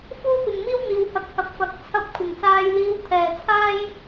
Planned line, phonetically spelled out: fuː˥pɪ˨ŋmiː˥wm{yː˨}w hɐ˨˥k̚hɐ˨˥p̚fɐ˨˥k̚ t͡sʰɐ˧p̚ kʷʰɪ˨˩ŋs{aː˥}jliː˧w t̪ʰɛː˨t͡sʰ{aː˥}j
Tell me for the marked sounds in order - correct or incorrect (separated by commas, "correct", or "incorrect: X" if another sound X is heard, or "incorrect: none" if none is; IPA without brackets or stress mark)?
incorrect: iː˨, incorrect: aː˧, correct